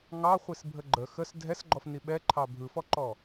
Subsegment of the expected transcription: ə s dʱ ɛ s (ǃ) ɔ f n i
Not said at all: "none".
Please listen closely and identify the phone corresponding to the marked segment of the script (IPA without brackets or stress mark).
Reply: ɡ͡ǃ